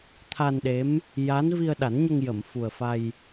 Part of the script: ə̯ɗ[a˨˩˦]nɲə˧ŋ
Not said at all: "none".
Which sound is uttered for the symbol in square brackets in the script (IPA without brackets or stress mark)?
a˨˩˦